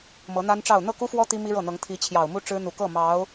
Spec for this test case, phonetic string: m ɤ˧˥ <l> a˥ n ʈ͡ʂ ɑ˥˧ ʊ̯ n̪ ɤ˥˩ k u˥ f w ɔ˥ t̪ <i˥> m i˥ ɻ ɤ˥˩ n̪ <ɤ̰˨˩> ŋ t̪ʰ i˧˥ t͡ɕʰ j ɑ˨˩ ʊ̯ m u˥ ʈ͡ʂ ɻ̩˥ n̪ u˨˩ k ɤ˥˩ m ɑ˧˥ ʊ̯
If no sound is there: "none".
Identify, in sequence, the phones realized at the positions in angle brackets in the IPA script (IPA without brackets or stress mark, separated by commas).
n̪, i˥, ɤ˧˥